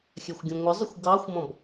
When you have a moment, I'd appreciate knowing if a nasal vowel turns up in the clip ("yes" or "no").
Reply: yes